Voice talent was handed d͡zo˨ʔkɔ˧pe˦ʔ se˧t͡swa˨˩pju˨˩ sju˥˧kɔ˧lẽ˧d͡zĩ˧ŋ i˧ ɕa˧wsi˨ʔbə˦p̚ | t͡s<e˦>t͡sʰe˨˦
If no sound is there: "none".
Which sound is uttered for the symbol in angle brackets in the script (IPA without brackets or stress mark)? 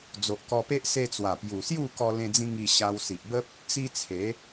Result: i˦